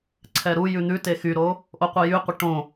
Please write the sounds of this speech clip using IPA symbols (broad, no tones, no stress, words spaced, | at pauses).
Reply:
ǀʰɛɾujʉ n̪ʉ texyɾo | ʔoqʷəjyqʷə ʈõ